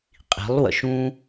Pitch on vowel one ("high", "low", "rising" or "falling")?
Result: rising